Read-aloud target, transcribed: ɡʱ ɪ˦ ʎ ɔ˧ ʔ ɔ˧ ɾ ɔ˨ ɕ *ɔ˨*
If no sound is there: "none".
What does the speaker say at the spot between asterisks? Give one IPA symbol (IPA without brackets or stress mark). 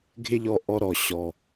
ɔ˨